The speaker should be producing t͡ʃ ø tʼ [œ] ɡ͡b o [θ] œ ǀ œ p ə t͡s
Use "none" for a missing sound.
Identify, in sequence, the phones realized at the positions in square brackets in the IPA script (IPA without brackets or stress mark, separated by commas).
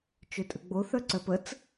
ə, θ